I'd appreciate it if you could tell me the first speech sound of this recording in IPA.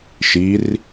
ʃ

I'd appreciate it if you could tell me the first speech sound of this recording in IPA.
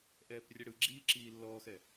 ʔ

